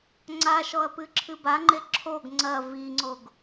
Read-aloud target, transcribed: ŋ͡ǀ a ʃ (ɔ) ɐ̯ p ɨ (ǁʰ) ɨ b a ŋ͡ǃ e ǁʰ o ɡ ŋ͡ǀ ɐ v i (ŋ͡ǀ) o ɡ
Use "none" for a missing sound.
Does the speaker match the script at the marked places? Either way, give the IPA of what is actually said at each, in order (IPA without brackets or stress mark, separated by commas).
ɔ, ǁʰ, ŋ͡ǀ